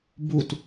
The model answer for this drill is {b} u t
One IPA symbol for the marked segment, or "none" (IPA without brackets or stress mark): b